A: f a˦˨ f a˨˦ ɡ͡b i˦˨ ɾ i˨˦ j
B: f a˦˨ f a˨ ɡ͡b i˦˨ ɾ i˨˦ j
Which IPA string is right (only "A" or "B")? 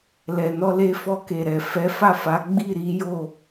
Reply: A